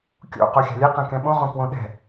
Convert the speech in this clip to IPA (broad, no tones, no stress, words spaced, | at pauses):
kʲo̰ qoxʲa̤lʲɛ qɛ̃kɛ̃ɓõ ʁõkwõɗɛ̤